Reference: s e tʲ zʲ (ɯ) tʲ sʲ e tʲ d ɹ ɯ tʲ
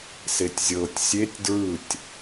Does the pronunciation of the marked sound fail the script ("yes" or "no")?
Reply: yes